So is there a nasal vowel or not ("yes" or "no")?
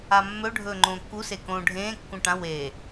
yes